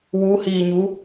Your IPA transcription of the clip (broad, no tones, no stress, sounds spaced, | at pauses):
w u h iː ɲ u